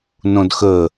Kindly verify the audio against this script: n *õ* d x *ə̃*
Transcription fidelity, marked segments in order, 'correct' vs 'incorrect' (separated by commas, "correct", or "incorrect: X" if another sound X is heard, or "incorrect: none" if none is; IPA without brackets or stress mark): correct, incorrect: ə